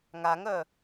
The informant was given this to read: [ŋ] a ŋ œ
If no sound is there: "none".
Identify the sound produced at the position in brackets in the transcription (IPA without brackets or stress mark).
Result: ŋ